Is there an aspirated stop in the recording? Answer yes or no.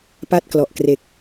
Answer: no